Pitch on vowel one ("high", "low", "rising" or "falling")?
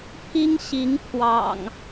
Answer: high